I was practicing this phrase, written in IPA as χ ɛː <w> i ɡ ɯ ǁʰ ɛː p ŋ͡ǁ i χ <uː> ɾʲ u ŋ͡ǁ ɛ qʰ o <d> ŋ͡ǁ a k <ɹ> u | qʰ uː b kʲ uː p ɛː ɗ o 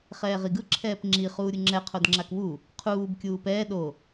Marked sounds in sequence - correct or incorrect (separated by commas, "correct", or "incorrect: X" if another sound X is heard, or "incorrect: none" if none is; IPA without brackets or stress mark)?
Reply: incorrect: ʁ, correct, correct, incorrect: w